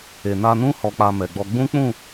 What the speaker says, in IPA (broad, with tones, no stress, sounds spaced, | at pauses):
e˨ n a˧ n ũ˦ h ɔ˧ k͡p a˧ m ɛ˨ ɡ͡b ɔ˧ ɡ͡b ũ˦ k͡p ũ˦˨